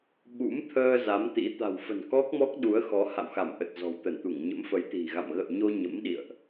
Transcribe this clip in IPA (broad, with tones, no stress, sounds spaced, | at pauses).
ɓ ṵ˧˥ m t̪ʰ əː˧ z a˨˦ m t̪ ḭ˧˥ t̪ a̤˨˩ w f ə̤˨˩ n k ɔ˦˥ k̚ m ɔ˦˥ k̚ ɗ u˨˦ ə̯ x ɔ˨˦ h a̰˧˨ w x a˧˩ m ʔ ə˨˩ t̚ z ɔ̤˨˩ w t̪ ə˧˩ n t̪ u˧˩ ŋ ɲ ə̰˧˥ m f ə˨˦ j t̪ i̤˨˩ ɣ a̰˧˨ m ɣ ə̰˧˨ w ɲ o˧ ɲ ə̰˧˥ m ɗ ḭ˧˨ ə̯ ʔ